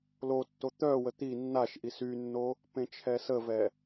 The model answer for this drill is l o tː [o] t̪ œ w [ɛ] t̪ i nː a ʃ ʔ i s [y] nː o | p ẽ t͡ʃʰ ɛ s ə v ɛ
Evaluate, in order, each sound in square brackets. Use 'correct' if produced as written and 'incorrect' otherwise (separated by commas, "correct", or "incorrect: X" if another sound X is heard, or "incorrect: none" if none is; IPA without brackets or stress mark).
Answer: correct, incorrect: ə, correct